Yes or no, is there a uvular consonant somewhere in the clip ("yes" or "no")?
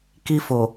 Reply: no